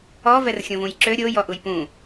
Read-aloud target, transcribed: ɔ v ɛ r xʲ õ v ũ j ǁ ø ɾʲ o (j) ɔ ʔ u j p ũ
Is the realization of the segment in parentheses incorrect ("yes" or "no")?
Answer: no